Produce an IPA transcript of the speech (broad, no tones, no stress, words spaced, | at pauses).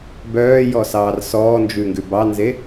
bœːjɔsɑːr sɔːnd͡ʒʉŋɡʉ bɑnze